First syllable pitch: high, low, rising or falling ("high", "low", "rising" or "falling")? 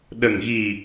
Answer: low